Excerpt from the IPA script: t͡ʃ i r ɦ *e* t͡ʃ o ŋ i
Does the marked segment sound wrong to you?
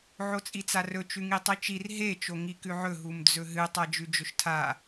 no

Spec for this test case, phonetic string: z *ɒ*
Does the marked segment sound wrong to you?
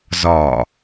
no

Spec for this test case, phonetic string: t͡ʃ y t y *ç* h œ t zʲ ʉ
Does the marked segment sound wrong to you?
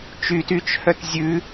yes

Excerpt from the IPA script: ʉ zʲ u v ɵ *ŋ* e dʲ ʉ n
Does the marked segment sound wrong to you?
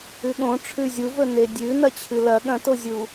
yes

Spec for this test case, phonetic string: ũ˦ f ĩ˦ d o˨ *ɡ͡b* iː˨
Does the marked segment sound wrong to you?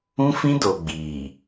no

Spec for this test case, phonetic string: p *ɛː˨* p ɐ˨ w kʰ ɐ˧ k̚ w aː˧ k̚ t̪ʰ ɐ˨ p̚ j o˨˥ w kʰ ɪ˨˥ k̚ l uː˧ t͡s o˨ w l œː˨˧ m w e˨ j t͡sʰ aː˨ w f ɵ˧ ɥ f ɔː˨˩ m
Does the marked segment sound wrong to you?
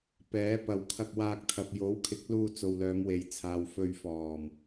yes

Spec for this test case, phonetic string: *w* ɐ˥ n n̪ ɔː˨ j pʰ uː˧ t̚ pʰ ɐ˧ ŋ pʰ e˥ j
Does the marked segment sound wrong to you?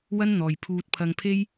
no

